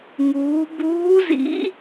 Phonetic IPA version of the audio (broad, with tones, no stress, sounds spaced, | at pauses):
ŋ uː˩˧ b uː˧˥ z ḭ˧˥